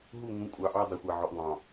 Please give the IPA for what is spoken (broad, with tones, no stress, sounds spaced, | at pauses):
ɦ u˦˨ ŋ ũ˨˦ kʷʼ ɑ˨ ʔ ɑ˦ dˤ ʊ˨ xʷ a˨ ʕ ɔ˨ ʔ ŋ ɑ̃˨